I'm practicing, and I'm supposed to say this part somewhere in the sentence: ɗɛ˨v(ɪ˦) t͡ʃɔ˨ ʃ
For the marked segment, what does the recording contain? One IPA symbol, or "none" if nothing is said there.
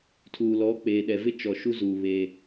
ɪ˦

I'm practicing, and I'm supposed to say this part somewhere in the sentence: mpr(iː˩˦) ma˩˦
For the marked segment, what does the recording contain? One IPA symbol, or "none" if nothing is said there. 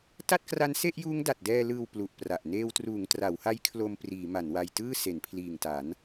iː˩˦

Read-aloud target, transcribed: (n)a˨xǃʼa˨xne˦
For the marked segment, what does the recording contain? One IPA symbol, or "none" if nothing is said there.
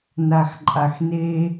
n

